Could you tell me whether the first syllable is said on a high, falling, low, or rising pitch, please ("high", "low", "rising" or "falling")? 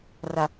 low